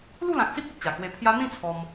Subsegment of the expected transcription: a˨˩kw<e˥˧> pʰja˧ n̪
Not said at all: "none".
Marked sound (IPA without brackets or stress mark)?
e˧